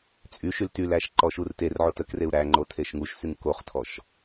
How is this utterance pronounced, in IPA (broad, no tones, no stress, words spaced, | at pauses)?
t͡sʼyʃyl tylæʃ ǃɔʃurterʕot əkreu̯ ɾæŋ͡ǃo tʰeʃŋuʃsyŋ koχtʰɔʃ